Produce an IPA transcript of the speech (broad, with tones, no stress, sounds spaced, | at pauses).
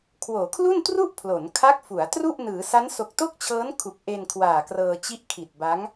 kʰ w oː˩˦ kʰ l u˥˩ n t r u˥˩ ʔ pʰ l o˩˦ n kʰ a˦˥ k̚ f u˩˦ a̯ t r u˥˩ ʔ n ɯː˩˦ s a˦˥ n s o˨˩ k̚ t o˥˩ k̚ t͡ɕʰ ɤː˦˥ n kʰ u˨˩ k̚ ʔ e˧ n kʰ w aː˨˩ k r ɤː˧ t͡ɕ i˦˥ ʔ kʰ i˨˩ t̚ b a˦˥ ŋ